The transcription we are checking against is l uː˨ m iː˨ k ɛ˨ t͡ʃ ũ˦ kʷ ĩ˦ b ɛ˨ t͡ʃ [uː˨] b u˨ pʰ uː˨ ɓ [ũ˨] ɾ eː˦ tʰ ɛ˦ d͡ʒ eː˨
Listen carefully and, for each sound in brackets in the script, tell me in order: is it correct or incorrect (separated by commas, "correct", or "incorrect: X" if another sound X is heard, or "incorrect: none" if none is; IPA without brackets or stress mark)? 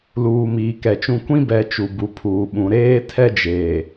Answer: incorrect: u˨, correct